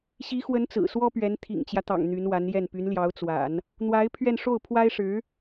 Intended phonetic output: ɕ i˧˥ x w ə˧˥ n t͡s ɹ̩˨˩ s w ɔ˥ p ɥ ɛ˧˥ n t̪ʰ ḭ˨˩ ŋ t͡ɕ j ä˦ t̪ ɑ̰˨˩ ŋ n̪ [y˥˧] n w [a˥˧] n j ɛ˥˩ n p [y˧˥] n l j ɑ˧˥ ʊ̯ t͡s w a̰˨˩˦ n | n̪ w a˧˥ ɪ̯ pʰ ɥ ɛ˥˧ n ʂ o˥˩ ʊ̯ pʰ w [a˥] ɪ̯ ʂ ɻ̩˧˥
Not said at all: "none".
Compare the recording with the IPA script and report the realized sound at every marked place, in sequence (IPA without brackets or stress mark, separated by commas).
y˧˥, a˧˥, y˧˥, a˥